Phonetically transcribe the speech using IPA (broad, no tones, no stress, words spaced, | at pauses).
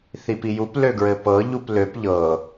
θipijup løɡɹɘpɤ ʎupløp ʎɤ